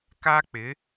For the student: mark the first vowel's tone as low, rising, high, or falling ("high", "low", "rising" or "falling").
high